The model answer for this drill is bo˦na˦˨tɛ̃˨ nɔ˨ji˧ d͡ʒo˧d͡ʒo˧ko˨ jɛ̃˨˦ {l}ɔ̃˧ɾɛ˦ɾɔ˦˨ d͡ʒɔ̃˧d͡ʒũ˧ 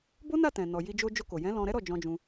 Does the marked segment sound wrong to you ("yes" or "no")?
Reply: no